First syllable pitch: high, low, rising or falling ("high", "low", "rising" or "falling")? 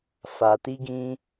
low